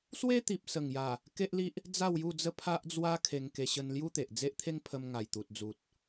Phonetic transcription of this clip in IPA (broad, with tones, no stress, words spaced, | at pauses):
swe˦t̪i˨p̚sə˨˩ŋja˨˩ | ke˦ʔli˦ʔ | d͡za˥˧wju˥˧d͡zə˥˧ pʰa˦ʔd͡zwa˦ kʰe˧ŋke˧ ɕə˧nlju˦t̪e˨ʔ d͡ze˦ʔt̪ʰe˦ŋpʰə˧m ŋa˨˩jt̪u˨t̚d͡zu˨t̚